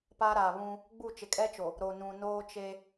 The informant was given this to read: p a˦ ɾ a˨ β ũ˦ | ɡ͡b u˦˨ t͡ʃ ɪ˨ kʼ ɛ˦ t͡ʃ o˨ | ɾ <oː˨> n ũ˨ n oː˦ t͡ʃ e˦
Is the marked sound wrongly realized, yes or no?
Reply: yes